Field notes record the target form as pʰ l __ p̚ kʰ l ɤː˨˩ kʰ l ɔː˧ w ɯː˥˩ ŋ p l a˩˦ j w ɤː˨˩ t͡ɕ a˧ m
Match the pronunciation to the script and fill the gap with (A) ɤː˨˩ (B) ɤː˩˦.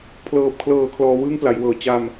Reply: A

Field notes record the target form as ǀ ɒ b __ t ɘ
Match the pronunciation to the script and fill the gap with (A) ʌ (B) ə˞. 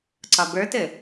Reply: B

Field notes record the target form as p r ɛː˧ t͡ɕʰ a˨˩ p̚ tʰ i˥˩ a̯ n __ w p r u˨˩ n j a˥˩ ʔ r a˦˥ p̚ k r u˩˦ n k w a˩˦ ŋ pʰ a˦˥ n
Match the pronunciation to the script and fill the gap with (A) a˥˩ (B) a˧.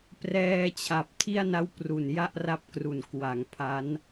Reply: A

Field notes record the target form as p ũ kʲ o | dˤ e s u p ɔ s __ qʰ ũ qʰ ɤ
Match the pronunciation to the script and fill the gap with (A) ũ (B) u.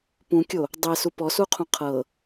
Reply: B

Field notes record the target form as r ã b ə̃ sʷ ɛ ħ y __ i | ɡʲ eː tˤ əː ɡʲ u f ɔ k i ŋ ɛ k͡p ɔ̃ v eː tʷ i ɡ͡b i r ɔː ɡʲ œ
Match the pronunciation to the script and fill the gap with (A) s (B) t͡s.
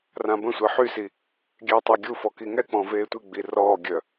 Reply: A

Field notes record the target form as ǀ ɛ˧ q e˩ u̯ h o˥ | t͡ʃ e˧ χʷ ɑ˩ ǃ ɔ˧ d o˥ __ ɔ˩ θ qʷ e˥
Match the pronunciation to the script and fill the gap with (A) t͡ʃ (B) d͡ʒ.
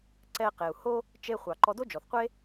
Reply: B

